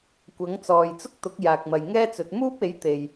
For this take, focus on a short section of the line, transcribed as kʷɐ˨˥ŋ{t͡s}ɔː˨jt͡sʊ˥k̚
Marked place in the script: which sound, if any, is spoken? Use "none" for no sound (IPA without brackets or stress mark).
t͡s